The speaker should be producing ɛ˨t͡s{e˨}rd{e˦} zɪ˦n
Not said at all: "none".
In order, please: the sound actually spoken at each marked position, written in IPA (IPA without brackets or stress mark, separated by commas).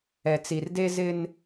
i˨, e˦